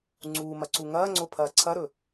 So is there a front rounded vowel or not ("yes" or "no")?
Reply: no